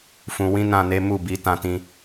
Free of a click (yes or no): yes